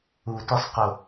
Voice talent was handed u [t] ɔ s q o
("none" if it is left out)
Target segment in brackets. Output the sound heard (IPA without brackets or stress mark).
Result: t